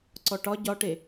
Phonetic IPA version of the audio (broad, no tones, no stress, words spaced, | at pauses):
ǀɔʈɒ ɟɒʈe